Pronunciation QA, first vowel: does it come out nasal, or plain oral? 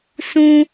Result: nasal